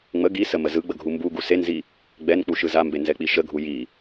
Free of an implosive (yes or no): yes